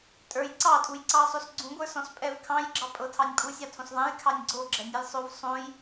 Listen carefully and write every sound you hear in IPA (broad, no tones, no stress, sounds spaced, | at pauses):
tʼ ə˞ j ǀ ɑ tʼ u j ǀ ɑ sˤ o s ɡ͡ǀ ũ ɡʷ ə˞ s ɔ̃ s pʼ ɛ v kʰ ɑ̃ j ɡ͡ǁ ɑ pʼ ɤ tʰ ɑ nʲ pʼ u sʲ ɑ tʰ õ s ðˤ ɛ̃ j kʰ ɑ nʲ ɡ͡ǀ o ɡ͡ǁ ɛ nʲ ɤ j sˤ o v sˤ õ j